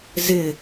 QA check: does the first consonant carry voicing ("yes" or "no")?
yes